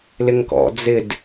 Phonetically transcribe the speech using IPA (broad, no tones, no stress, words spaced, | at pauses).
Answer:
lɪŋkɔ̰ d͡zɪd